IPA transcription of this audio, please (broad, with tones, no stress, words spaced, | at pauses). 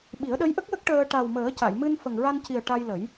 ɓi˨˩˦ə̯ɗə˧˥jʔə˦˥k̚wə˦˥k̚ ʈəː˧ ʈa˨˩wməː˨˩˦ ca˨˩˨jmɨ˧n fə˨˩ŋɹa˧nci˨˩ə̯ ʈa˧jlə˨˩˦j